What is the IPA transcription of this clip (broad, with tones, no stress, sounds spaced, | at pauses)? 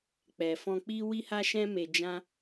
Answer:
k͡p ɛ˨ f ɔ̃˧ k͡p i˦ w i˦ h a˦ ʃ ɛ̃˦ m e˧ d͡ʒ ã˦